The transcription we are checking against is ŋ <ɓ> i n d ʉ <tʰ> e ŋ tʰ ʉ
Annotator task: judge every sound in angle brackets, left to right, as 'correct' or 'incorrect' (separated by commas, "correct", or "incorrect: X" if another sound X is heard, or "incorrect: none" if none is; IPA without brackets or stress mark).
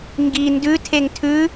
incorrect: ɡ, correct